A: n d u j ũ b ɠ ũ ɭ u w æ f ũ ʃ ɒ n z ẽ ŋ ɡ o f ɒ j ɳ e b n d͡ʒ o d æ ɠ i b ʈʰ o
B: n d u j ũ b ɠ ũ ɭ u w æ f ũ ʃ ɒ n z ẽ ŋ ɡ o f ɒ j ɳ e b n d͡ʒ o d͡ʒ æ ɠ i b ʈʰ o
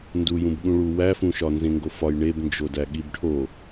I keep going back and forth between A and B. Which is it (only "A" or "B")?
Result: A